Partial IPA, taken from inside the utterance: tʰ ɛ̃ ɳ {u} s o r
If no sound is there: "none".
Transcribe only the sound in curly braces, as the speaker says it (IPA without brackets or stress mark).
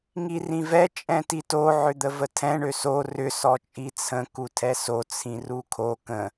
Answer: ø